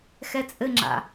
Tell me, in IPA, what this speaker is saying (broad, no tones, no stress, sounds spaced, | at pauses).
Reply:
x ɛ t͡sʼ ɘ ŋ͡ǁ a̰